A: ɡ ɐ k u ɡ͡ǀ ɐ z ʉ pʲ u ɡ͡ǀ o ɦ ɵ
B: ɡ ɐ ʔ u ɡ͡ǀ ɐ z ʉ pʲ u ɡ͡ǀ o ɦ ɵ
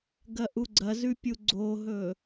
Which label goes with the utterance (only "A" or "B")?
B